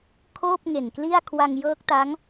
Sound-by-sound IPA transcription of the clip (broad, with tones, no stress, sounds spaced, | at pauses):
kʰ oː˥˩ p̚ ŋ e˨˩ n k l i˥˩ a̯ kʰ w a˧ ŋ j ɤː˦˥ k̚ t a˦˥ ŋ